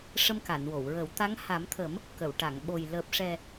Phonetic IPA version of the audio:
ʂ ə˧ m k a˨˩˨ n w o˨˩˨ w ɹ ə˨˩˦ w t̪ a˧˥ ŋ h a˨˩˦ m t̪ʰ ə˨˩˦ m | k ə˨˩˨ w ʈ a˨˩˨ ŋ ɓ o˨˩ j l əː˨˩ p̚ ʂ ɛ˨˩

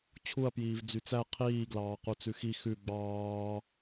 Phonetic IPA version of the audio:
t͡ɕʰ u ɐ̯ p j iː v d͡z y t͡s æ qʰ iː ɡ l ɑː q u t͡s ʉ x i x ʉ ɡ͡b ɑː

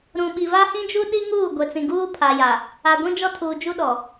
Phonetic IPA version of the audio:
ɾ ũ˨ ɓ i˨ v a˦ h ĩ˦ d͡ʒ u˦ ɗ i˦ ŋ uː˦˨ ɡʷ e˨ t͡s ĩ˨ ɡ uː˦ pʰ a˨ j a˨ | a˨ ɡʷ ĩ˦ d͡ʒ ɔ˦ tʰ uː˨ d͡ʒ u˦ ɗ ɔ˨

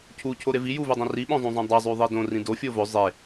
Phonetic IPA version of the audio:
cʰ u cʰ o ɾ e v i j u v ʉ dˤ ɐ̃ r i ɓ õ zˤ ũ zˤ õ dˤ a zˤ ʉ ðˤ i d õ r ĩ d o fʲ o v ɵ zˤ e

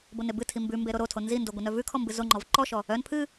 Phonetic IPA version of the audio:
b o n e b ɨ tʰ i m b ʉ m b e ɾ o ɾ o tʰ o n z i n d o ɡʷ ɨ n œ v ʉ kʰ ɔ m b ɨ z o ŋ͡ǃ ɔ v ǃ ɔ ʃ ɔ | œ n pʰ ɨ

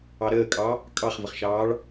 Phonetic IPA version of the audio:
ɑ ɾ əː kʼ ɑ | kʼ ɑ χ v ə χ ʃ ɑː ɭ

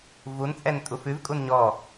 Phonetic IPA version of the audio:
v u n t͡sʼ ɛ n tʼ u f ʉ v kʼ u n ɲ ɔ

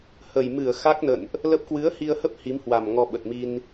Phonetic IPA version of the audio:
h ə˨˩ j m ɨ˧˩ ə̯ x a˦˥ k̚ n ə̰˧˨ n ʔ | l ə˦˥ p̚ k w ɨ˨˦ ə̯ h i˧ ə̯ h ə˦˥ p̚ h i˨˦ m h w a˨˩ m ŋ ɔ˧ ɓ ə˨˩ t̚ m i˧ n

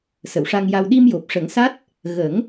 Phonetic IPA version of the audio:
s ə˨˩˨ w ʂ a˧ ŋ j a˧ w ɗ i˧ m j o˨˩ p̚ ʂ ə˨˩˦ ŋ s a˦˥ t̚ | ɣ ə˨˩˦ ŋ

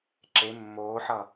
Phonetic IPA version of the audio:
ǁ e mː oː ħ ʌ

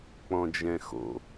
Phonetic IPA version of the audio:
k͡p ɔ̃ d͡ʒ ɛ̃ x o̰

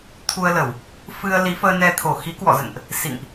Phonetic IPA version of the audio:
t̪ʰ u˧ ə̯ l ə˧˩˨ w | f ɨ˧ ə̯ l i˨˦ f əː˧ n ɛ˧ t̪ʰ o˧˩ x i˨˦ k w ɔ̰˧˨ z ə̰˧˨ n ʔ | s ḭ˧˨ ŋ ʔ

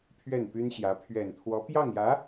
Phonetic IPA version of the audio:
pʰ ɥ ɛ˥˩ n p y˥ n ɕ j ä˧˥ pʰ ɥ ɛ˨˩ n t̪ʰ w ɔ˧˥ p j ɑ˥˩ ŋ j ä˧˥

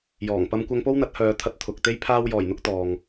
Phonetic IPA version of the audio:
j ɔː˨˩ ŋ p ɐ˧ m kʷ ɐ˧ ŋ p o˥ w n̪ ɐ˨˥ t̚ h œː˨˧ t̪ʰ ɐ˧ t̚ t̪ʰ ʊ˨ k̚ t̪ e˥ j pʰ aː˧ w j ɔː˨˩ j n̪ ʊ˧ k̚ t̪ ɔː˨ ŋ

